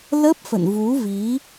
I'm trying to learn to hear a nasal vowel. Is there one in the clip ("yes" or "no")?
no